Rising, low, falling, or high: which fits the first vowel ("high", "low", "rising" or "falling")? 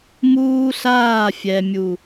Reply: high